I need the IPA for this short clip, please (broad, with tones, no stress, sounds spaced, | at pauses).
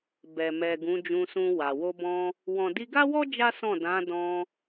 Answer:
b ɛ˨ m ɛ˨ ɡ ũ˨˦ d͡ʒ ũ˧ s ũ˧ w a˨ w o˧ b ɔ̃˧ | w ɔ̃˨ d i˧ ɡ a˦ w ɔ˦ d͡ʒ a˦ s ɔ̃˦˨ d ã˨˦ d ɔ̃˧